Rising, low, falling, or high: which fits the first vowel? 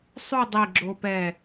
falling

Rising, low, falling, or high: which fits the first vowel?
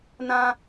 high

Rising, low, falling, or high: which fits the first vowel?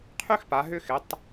high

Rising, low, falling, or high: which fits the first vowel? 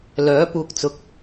rising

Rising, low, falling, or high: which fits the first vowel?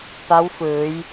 rising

